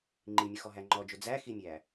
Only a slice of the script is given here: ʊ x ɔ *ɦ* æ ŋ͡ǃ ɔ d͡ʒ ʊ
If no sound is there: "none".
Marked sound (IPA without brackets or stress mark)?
ɦ